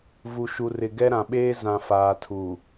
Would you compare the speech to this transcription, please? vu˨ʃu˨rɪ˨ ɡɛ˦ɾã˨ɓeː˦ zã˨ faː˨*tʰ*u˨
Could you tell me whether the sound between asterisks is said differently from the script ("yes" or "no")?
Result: no